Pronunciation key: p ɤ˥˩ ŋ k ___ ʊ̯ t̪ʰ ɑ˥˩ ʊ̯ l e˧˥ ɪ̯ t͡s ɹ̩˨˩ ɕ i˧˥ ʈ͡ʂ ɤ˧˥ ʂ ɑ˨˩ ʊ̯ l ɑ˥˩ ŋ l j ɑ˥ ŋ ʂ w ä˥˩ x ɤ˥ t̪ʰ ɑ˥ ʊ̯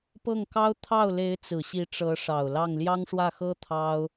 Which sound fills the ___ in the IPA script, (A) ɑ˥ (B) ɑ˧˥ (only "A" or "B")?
A